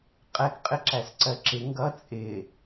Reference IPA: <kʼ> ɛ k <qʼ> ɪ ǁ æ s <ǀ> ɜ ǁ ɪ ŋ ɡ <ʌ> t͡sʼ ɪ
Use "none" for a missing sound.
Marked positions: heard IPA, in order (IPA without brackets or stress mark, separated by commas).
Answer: qʼ, qʼ, ǀ, ʌ